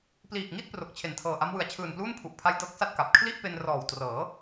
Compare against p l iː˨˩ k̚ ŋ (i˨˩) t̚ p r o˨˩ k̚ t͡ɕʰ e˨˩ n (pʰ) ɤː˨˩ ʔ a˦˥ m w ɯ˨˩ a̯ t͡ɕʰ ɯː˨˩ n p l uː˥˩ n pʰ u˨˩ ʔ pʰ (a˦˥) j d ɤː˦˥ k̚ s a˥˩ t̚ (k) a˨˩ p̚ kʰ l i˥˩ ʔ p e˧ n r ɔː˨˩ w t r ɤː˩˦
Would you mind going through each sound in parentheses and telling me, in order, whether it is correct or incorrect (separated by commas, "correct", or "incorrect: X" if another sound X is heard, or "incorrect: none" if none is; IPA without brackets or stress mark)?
incorrect: i˥˩, incorrect: tʰ, correct, correct